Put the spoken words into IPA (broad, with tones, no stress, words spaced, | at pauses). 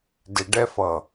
dɪ˧ɖɛ˥fʌ˧˩